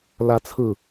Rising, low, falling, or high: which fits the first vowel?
rising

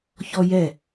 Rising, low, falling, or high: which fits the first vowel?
high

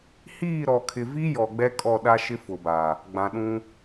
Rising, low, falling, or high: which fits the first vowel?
falling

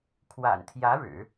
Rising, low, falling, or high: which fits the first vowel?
low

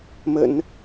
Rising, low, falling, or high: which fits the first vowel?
low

